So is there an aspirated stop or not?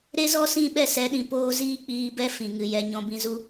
no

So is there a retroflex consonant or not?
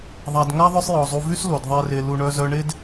yes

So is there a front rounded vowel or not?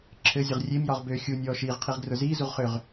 yes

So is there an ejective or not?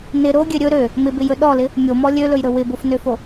no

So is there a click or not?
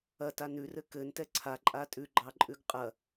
yes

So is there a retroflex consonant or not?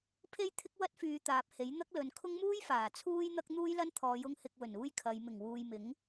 no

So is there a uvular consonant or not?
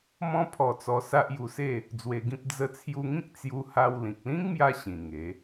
no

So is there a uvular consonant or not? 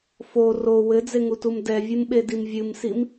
no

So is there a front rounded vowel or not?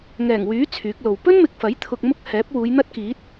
yes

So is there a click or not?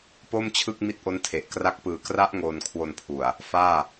no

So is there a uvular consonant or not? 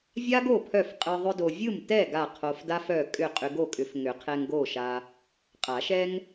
yes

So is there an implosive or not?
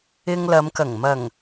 no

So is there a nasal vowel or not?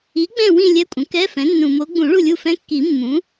yes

